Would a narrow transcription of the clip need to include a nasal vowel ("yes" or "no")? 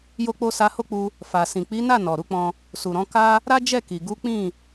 yes